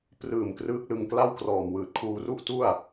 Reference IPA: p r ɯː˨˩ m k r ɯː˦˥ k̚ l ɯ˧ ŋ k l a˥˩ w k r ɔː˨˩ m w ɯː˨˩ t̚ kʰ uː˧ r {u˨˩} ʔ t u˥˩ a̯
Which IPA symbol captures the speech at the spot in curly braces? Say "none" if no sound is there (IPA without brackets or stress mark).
u˥˩